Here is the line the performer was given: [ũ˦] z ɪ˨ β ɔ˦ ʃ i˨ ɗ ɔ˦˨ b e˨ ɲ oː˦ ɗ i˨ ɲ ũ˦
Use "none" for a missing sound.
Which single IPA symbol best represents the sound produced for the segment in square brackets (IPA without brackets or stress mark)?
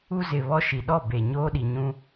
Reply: u˦